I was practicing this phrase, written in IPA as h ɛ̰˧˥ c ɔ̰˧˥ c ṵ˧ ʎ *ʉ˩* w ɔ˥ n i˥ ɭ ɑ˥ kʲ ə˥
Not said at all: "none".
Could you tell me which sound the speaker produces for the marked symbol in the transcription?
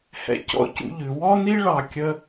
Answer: ʉ˩˧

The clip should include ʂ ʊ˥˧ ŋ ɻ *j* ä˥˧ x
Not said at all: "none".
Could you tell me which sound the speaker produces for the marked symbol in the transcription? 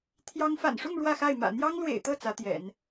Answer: w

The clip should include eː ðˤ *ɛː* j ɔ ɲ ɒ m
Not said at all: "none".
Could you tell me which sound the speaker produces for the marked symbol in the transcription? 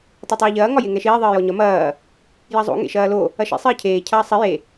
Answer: ɘː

